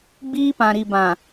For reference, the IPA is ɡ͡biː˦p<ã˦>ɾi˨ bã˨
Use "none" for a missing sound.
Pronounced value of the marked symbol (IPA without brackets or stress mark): ã˨